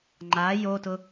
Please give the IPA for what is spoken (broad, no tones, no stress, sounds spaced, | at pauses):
ŋ͡ǃ a j o t ʊ